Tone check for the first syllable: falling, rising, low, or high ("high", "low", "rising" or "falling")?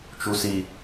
low